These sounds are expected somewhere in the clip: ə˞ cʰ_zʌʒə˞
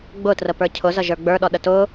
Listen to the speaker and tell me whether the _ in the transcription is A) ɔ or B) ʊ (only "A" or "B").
B